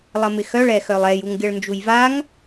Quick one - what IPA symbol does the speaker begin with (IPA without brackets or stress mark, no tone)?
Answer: lˠ